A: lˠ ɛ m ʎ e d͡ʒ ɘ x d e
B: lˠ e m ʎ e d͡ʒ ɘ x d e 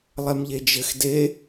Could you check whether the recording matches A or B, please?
A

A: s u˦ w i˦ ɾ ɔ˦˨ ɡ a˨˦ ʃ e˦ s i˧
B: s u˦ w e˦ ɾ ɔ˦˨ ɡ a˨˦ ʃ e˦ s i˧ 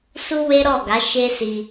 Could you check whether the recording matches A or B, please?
B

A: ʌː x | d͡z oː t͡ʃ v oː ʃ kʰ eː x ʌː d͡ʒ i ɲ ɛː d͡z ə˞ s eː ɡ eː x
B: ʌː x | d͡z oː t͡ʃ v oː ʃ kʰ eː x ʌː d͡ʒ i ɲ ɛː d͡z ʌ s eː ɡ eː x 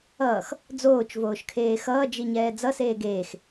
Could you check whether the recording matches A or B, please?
B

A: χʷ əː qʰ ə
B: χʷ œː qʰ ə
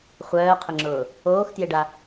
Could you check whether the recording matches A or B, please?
B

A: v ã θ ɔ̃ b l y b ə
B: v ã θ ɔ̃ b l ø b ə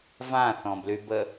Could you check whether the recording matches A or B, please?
A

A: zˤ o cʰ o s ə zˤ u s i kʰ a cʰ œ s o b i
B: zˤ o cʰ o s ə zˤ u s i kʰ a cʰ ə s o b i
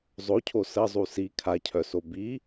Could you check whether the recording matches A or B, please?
A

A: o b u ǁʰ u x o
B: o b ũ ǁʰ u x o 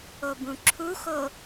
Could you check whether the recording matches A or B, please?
B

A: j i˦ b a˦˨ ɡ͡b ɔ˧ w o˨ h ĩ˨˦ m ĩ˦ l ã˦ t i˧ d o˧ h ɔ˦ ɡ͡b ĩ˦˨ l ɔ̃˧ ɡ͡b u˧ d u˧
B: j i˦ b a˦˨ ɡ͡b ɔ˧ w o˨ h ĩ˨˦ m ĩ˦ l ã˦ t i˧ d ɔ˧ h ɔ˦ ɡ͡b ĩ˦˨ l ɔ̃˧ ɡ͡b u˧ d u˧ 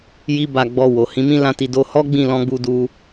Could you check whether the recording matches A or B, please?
A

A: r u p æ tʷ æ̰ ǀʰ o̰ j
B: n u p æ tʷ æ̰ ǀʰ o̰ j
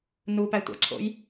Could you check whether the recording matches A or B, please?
B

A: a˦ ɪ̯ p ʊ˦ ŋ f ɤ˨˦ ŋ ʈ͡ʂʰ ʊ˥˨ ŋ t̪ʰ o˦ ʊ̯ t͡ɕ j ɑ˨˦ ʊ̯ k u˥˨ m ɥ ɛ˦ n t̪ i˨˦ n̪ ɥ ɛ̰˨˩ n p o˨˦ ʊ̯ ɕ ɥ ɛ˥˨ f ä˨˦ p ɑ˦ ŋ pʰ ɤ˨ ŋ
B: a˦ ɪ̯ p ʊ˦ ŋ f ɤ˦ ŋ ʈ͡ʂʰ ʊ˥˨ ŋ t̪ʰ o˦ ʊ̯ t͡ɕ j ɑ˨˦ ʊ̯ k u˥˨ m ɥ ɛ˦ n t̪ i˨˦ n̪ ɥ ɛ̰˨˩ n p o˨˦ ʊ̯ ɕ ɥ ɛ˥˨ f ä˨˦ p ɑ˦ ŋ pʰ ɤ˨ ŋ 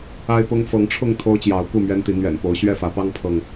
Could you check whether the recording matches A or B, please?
A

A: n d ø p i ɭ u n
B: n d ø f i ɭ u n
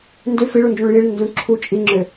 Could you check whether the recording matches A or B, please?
B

